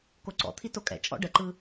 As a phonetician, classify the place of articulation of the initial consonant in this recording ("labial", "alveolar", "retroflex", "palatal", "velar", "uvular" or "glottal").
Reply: velar